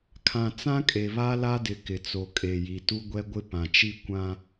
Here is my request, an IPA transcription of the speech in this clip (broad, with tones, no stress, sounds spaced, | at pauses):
kʰ ã˨ t͡s ã˦ kʼ e˨ β a˦ l a˦ d ɪ˨ k ɪ˨ t͡s o˨ kʼ e˨ j i˨ t u˦ ɡʷ ɛ˦ ɡʷ ɪ˦ p ã˨ t͡ʃ i˦ kʷ ã˦